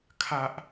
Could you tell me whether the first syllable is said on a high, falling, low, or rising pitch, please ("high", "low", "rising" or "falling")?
high